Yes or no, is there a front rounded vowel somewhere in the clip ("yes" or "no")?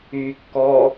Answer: yes